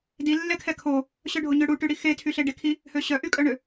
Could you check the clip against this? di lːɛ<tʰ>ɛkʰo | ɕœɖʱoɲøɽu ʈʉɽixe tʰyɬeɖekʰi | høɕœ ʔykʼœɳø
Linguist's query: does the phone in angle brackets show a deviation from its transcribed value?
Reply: yes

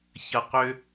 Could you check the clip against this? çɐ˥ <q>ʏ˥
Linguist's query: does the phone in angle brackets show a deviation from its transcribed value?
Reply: no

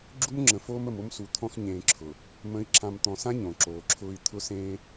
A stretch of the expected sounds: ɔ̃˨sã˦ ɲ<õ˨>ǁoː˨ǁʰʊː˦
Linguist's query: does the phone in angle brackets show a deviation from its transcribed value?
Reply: no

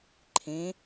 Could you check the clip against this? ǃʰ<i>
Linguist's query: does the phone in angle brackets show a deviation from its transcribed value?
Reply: yes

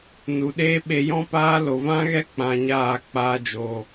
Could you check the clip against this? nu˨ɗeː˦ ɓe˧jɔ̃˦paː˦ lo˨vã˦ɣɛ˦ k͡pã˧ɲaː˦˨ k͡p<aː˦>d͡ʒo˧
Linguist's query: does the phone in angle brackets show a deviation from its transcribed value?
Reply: no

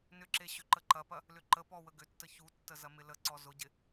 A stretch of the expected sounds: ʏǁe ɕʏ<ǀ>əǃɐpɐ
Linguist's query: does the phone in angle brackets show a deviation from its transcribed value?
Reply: yes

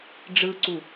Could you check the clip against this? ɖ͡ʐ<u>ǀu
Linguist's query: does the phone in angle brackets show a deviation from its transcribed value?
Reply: yes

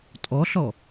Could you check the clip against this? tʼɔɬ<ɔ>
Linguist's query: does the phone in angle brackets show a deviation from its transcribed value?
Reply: no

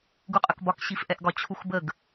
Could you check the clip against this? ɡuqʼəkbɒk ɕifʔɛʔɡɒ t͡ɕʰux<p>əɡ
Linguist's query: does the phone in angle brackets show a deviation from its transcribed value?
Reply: yes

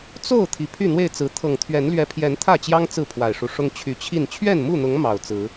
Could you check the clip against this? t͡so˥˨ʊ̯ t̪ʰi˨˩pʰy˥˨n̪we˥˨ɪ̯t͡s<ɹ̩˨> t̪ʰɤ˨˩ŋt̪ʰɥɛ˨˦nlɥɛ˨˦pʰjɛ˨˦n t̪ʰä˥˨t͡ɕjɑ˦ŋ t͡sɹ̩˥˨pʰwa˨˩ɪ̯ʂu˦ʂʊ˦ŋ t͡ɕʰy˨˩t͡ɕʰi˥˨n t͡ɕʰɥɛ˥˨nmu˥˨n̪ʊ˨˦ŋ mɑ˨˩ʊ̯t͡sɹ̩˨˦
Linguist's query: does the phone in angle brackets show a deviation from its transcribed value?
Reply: yes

